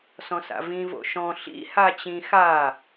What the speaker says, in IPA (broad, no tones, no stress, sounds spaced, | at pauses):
s ɔ̃ s a̰ v ĩ v o̰ ʃ ɔ̃ ɬ ḭ h a t͡ɕ ĩ x a